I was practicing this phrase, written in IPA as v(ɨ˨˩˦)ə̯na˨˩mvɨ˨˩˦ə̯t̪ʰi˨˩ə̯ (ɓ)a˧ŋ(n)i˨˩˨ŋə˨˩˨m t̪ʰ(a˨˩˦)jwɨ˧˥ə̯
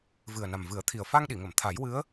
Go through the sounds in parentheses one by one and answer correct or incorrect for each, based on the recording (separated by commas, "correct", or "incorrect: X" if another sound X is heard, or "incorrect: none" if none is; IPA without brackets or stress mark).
incorrect: ɨ˨˩, incorrect: f, incorrect: ɗ, correct